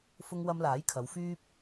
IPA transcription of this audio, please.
fʊ˧ŋwɐ˧mlaː˨˥jkʰɐ˨˧w fyː˥p̚

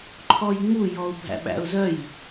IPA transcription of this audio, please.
ǃʰɔjŋ͡mujɔʊ̯ bʱæ̰ɓæ̰ʊ̯zœj

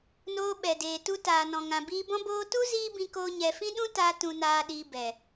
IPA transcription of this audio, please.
noː˧ɓɛ˨deː˨ tu˧taː˨ nɔ̃˨ŋã˨biː˧bɔ̃˦ boː˧tu˦ ziː˦bĩ˧koː˧ ɲɛ˨fĩ˦ɗũ˦ ta˧ tũ˨naː˨ɗiː˨ bɛ˨

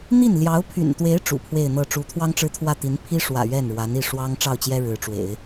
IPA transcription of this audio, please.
n̪i˥˩n ljɑ˧˥ʊ̯pʰy̰˨˩nt̪we˧˥ɪ̯ ʈ͡ʂṵ˨˩pʰwe˥˧ɪ̯n̪ɤ˥˩ ʈ͡ʂu˧˥t̪ʰwɑ˥ŋʈ͡ʂɻ̩˥t̪ʰwä˥˩ t̪i˧˥n pʰi˥ʂwä̰˨˩ ɥɛ˥˩nɻwa˧˥ni˥˩ ʂwɑ˥ŋ ʈ͡ʂɑ˥˩ʊ̯t͡ɕjɛ˥ ɻɻ̩˧˥ʈ͡ʂwḛ˨˩˦ɪ̯

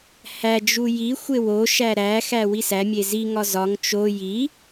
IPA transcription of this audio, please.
hæd͡ʒu jixʷe woʃæ ɾæxæ wisæmʲe ziŋɒ zɒŋ t͡ʃo ji

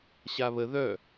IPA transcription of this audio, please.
ɕaβə ðœ

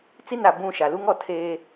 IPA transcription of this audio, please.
t͡si˦˨na˨ bũ˦˨ʃa˨ lu˦ŋɔ˨ tʰeː˦

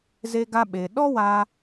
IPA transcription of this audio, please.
ze˧ɡa˧ɓe˨ ɗɔ˦waː˧

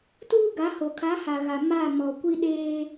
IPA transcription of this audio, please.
tuː˦ɡa˨˦ ho˨kʰa˨˦ha˨ɣa˨ ma˦˨ mɔ˨ kʷi˦ ɗeː˦

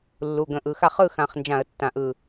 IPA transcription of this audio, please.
lːu˩˧˩ɡə̃˧˩˧ʔɯ˩˧˩xa˦ χɯ˥˨xã˧˩χnd͡ʒã˧˩˧ə̯ tːã˧˩ʔɯ˧˩

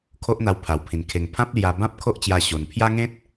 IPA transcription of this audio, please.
kʰo˦ʔn̪a˧wpʰa˨˩wpʰĩ˨˩n kʰe˨˩ŋ pʰã˦p̚lja˧bã˦p̚ kʰo˦ʔt͡ɕja˧ ɕo˨˩npʰja˦ ŋẽ˦t̚

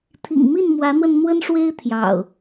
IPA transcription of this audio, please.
t̪ʰḭ˨˩ŋ mi˥˨nmwä˨˦n̪wə˧n n̪wə˦nʂwe˦ɪ̯ t̪ʰjɑ̰˨˩ʊ̯

